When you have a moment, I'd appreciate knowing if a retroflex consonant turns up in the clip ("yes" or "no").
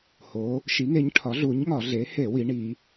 yes